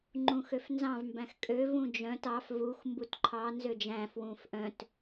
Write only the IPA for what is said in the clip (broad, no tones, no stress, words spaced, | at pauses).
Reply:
ŋ͡ǃũxøfnzɑ̃v mbæ̃xkʼøv ũd͡ʒœ̃t ɑf vux mbutǃʰɑ nzød͡ʒæ̃ fwũfʔœ̃t